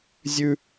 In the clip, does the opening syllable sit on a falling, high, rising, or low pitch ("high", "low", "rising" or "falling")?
high